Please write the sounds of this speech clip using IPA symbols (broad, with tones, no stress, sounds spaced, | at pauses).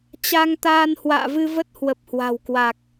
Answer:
t͡ɕ a˧ ŋ t̪ aː˧ n h w a̰ː˧˨ v ɨ˧ v ə˦˥ t̚ h w ə˨˩ p̚ h w a̤˨˩ w k w a˨˩ k̚